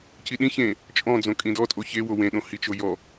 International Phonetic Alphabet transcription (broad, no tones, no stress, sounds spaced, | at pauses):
c i ɗ ĩ ç ẽ | t͡ʃʼ ɔ̃ d͡z õ kʼ ĩ d ɔ tʼ o ç e w o w ẽ ɗ õ h i t͡ʃ o j ɔ